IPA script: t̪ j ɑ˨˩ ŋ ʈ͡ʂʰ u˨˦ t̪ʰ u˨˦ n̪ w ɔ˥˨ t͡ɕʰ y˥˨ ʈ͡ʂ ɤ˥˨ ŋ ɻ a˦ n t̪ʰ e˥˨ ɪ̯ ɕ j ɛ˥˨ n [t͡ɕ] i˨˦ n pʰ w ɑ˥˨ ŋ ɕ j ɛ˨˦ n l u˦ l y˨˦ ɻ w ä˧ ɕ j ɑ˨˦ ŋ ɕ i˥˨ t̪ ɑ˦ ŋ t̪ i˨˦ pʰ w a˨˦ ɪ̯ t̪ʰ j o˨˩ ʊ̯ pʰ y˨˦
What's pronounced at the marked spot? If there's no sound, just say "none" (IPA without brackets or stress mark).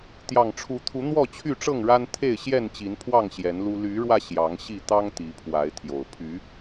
t͡ɕ